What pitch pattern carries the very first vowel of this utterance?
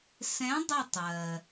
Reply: rising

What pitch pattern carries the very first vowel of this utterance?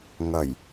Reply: low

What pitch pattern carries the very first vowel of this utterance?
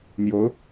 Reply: rising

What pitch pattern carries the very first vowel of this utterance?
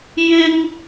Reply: high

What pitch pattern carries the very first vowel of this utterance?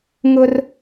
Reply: high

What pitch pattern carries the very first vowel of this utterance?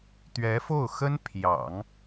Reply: rising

